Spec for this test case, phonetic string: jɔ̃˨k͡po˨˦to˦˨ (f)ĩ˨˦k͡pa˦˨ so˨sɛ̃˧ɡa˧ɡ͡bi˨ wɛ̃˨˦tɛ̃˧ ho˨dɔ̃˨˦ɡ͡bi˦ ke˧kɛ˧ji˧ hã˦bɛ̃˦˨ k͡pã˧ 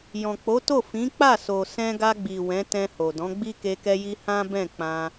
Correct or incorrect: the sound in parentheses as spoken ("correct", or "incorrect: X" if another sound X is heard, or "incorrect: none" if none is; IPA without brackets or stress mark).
correct